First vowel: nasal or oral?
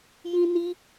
nasal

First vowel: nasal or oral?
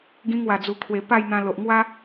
nasal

